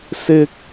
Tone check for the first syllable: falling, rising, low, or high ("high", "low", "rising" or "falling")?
high